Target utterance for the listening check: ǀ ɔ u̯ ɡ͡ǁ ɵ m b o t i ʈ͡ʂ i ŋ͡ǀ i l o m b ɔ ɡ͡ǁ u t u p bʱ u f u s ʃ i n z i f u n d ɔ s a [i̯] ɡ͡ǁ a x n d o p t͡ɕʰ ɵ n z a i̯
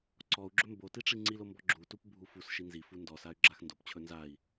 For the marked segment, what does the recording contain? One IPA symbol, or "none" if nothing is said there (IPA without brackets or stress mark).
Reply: y̯